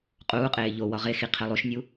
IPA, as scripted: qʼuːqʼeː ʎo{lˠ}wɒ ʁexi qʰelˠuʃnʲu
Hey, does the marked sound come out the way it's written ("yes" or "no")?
no